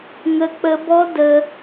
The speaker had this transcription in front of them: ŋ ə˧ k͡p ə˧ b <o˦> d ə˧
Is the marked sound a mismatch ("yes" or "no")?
yes